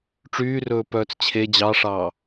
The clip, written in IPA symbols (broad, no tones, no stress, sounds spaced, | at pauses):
ʈ͡ʂ yː r ɵː p œː t͡s t͡ɕʰ e d͡ʑ ɑ ʂ ɑː